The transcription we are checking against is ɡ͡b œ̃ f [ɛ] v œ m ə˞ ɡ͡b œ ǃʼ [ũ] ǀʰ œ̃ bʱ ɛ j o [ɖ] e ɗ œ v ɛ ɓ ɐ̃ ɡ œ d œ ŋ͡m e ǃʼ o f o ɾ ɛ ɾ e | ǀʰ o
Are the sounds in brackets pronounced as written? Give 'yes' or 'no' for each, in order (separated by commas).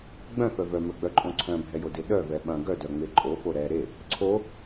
no, no, no